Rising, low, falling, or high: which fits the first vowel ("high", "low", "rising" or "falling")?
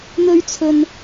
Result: high